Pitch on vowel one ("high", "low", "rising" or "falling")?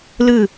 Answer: falling